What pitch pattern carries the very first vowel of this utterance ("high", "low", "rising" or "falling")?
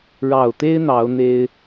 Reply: low